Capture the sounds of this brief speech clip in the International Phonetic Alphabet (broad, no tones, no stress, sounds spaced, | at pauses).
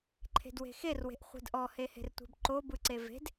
ǃʰ e̤ d w e̤ x e r w e̤ ʔ χʷ e̤ d ʔ ɔ h e h e̤ r tʷ e̤ b ǃ o b ɯ ǀ e v e̤ d